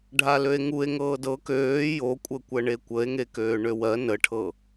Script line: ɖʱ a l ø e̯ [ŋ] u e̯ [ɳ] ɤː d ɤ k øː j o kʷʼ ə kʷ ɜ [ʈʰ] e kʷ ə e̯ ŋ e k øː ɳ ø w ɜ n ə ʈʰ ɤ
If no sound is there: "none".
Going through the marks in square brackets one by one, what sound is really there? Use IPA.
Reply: ŋ, ŋ, ɳ

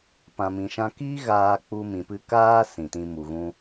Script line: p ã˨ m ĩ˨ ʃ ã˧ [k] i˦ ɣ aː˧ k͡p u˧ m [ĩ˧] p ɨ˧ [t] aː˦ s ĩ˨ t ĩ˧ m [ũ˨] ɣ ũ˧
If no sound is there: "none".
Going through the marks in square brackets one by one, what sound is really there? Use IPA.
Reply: k, ĩ˨, k, u˨

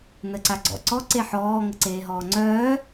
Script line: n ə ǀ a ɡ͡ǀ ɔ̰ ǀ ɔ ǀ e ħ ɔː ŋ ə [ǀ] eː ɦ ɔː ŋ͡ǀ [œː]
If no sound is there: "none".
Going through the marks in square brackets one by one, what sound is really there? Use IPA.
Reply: ǀ, œː

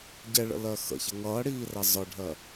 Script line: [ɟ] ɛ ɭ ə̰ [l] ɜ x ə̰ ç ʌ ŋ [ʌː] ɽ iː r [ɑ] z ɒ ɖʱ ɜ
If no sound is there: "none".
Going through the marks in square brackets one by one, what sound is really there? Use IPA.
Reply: ɟ, l, ʌː, ɑ

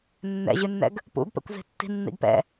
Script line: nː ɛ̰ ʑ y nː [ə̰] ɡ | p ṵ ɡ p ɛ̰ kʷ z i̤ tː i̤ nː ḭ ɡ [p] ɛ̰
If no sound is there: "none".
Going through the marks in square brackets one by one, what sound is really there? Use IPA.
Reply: ɛ̰, p

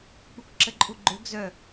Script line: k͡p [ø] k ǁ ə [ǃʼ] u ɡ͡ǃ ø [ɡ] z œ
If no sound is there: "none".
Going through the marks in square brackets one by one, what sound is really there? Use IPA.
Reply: u, ǃʼ, ɡ

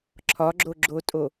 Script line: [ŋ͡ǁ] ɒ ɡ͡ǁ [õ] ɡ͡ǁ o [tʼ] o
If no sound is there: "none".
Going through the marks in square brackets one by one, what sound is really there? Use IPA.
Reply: ǁʰ, o, tʼ

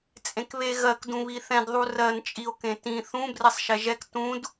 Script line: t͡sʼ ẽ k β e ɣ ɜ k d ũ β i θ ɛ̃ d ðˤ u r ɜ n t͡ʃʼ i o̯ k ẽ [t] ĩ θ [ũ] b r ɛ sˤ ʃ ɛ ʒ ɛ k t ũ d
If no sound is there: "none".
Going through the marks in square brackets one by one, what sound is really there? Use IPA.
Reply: t, ũ

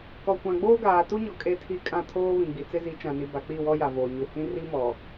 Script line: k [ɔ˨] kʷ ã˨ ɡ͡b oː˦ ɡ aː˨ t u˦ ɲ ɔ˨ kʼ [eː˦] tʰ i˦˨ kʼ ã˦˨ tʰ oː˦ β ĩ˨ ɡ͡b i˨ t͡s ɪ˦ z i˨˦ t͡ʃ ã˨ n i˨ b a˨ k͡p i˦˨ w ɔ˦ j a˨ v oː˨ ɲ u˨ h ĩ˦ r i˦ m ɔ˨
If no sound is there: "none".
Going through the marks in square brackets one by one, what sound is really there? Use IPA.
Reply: ɔ˨, e˦

